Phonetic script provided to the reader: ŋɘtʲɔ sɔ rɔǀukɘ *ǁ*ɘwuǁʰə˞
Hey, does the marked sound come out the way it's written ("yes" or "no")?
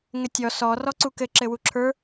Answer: yes